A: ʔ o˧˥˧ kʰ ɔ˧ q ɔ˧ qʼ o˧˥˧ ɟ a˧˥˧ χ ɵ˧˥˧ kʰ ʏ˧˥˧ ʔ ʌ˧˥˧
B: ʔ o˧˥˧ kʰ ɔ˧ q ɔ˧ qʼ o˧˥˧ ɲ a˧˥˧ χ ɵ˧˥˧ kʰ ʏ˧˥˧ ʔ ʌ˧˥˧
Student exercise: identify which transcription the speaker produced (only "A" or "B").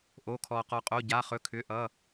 A